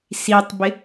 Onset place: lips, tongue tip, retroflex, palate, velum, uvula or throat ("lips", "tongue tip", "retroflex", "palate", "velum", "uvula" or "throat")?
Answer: tongue tip